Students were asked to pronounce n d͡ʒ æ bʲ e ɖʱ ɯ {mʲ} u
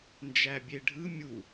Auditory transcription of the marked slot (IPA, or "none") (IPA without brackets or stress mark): mʲ